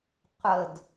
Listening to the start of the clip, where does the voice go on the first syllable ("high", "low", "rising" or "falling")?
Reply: falling